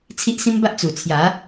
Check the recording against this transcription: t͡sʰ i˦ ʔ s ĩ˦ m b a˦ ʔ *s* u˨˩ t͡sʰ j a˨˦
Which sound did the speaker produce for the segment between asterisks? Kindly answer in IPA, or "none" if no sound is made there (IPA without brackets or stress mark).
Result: t͡s